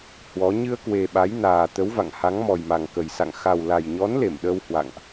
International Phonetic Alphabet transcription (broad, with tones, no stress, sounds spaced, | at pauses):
h w ɔ˨˦ ɲ ɨ˧ ə̯ k w e˨˩ ɓ a˨˦ j n aː˨˩ t̪ ə˨˦ w v a̰˧˨ ŋ h a˨˦ ŋ m ɔ˨˩ j m a˨˩ ŋ k ə˨˩ j s a̰˧˨ ŋ x a˨˩ w l a˨˩ j ɲ ɔ˨˦ n l e˧˩ m ɗ ə˧ w h w a̰˧˨ ŋ ʔ